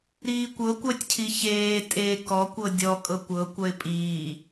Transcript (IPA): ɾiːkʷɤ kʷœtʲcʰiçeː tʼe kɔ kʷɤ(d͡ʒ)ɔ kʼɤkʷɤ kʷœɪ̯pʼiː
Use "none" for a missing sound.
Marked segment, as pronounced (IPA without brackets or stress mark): dʲ